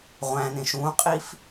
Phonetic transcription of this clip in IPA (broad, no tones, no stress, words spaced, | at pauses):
ʁʷæ̃nẽʃ ũqʼif